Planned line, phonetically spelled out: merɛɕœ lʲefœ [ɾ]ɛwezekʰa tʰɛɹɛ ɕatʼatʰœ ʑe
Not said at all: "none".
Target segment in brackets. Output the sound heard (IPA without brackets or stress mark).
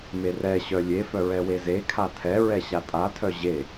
ɹ